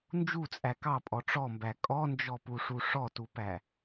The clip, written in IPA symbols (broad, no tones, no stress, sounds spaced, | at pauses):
n d͡ʒ u t͡sʼ æ k ɑ pʼ ɔ ʈ͡ʂ ɔ m b æ kʼ ɔ n d͡ʒ ɔ p u ʂ u ʂ ɔ t u p æ